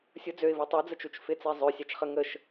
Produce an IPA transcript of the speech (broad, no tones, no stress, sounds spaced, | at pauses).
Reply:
sʲ ʊ d͡z ø ɪ̯ v u tˤ u d͡z ə t͡ʃ u t͡ʃ f ɪ t͡s ɛ zˤ ø sʲ a t͡ʃ χ ə ŋ ə ʃ